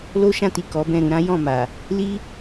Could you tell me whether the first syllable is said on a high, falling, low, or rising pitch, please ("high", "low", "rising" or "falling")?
high